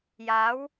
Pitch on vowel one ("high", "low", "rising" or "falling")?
rising